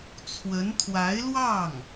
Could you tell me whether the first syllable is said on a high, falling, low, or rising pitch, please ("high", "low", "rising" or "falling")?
rising